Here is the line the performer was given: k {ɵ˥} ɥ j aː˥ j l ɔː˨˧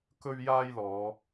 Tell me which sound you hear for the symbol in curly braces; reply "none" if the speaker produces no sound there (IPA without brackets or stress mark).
ɵ˥